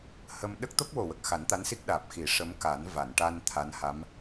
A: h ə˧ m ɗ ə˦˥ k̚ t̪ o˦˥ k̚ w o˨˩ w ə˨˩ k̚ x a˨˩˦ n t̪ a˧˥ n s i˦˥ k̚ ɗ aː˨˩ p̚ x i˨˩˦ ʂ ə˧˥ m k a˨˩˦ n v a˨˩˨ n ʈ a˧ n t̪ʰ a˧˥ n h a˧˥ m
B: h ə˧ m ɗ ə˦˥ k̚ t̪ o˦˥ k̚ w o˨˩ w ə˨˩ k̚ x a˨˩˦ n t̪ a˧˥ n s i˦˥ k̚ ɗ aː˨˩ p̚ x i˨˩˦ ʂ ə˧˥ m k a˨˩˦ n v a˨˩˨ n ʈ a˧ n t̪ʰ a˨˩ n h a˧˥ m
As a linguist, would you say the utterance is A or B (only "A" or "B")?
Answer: A